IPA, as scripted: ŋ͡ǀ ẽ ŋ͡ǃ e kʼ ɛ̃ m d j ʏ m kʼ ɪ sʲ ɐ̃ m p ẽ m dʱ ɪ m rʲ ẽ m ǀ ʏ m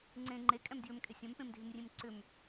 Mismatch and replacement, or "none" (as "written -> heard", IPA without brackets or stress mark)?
none